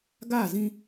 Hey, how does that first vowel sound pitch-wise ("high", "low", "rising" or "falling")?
falling